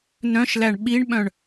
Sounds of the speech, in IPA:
n œ̃ ʃ l æ ɳ ɓ i ɳ ɓ œ̃ ɳ

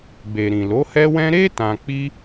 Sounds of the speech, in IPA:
b e˨ ɾ ĩ˨ l o˨˦ h ɛ˦ w ɛ̃˦ ɾ e˦ t ã˧ k͡p i˦

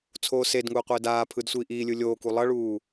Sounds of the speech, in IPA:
t͡sʰ oː s e d ŋ uː qʷ eː d aː pʰ ɯ d sʷ iː ʔ iː lʲ ɯ lʲ oː k u lˠ ʌ ɭ uː

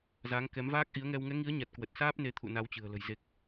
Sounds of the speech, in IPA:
z a˨˦ ŋ k ɛ˨˦ m v aː˦˥ k̚ ʔ i˨˦ ə̯ ŋ ɛ˧ w ŋ ɛ˨˦ ŋ i˨˦ ə̯ ɲ a˨˩ t̚ k w ə˨˩ t̚ s aː˦˥ p̚ n e˨˦ t̪ʰ ṵ˧˨ n a˨˦ w t͡ɕ ɨ̤˨˩ ə̯ l ə̤˨˩ j z e˨˩ k̚

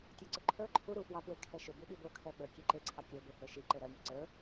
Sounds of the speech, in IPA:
tʲ ɜ ǀ ʊ ǃʰ ə˞ ǃʰ u ɾ u f w ɑ p w e kʰ ɛ ʃ ʊ b i ɓ i b o kʰ ɛ ɓ ə˞ kʲ e ǃ e ǀʰ ɑ kʲ o b e h ə˞ ʃ i ǃ e ɾ ɜ nʲ u ǀ ə˞

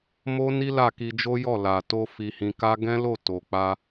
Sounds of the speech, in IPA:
m o˦ n i˦ l a˦˨ k i˧ d͡ʒ o˦ j ɔ˦˨ l a˨ t o˧ f i˧ h ĩ˧ k a˦ ɡ ɛ̃˦ l o˦˨ t o˨ k͡p a˧

